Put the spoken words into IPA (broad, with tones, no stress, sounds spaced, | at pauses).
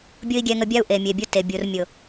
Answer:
bʲ ʊ˦ i̯ ɡʲ ɛ˧ ŋ ə˧ bʲ a˦ u̯ ʔ e˨ mʲ e˨ bʲ u˧ t e˨ bʲ u˨ r mʲ ʊ˨